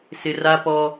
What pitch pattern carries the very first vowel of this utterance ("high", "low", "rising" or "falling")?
high